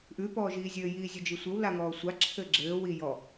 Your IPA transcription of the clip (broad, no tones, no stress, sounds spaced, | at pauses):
ʔ ʉ p ɔː ʒ iː zʲ ɘː j iː zʲ ʉ d͡ʒ i sʷ ɘ w l a ŋ ɔː sʷ a ǁʰ ɘː ɡ͡ǁ ɘː w i j ɔ